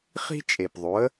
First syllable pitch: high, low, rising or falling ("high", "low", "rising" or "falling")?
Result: high